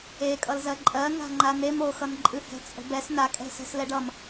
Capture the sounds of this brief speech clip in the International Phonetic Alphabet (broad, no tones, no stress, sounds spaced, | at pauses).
e kʼ ʌ l z ɜ ǃʼ ɜ ŋ a̤ ŋ͡ǃ a n e m o x ʌ n ǃʼ ɨ h ɛ̤ t͡sʼ ə̤ b ɛ s n a kʼ ɛ̤ s ɛ̤ s l ɛ ɖ ʌ m